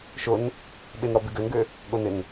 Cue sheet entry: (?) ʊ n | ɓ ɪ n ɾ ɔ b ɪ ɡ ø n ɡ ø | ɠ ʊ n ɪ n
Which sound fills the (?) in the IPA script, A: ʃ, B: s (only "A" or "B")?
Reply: A